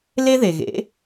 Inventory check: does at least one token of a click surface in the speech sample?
no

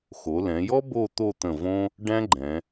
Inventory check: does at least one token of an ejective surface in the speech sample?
no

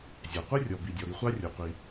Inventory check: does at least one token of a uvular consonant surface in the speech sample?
yes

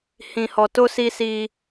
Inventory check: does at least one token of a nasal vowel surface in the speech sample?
yes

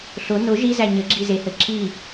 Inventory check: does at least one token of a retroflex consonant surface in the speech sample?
no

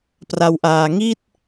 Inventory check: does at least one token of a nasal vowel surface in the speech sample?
no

